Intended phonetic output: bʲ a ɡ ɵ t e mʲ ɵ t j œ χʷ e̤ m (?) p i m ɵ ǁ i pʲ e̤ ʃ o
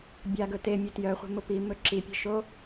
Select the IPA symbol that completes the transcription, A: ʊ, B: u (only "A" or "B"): A